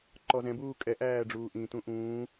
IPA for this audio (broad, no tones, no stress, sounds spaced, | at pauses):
ǃ ɔ z ɛ̃ b uː kʼ ɛ ʔ æː ɖ͡ʐ uː ʔ ĩ t ũ ʔ ũː